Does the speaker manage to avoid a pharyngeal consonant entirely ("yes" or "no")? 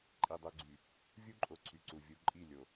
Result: yes